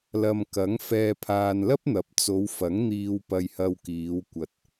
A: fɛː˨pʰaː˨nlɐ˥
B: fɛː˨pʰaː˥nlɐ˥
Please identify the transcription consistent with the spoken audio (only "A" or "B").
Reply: A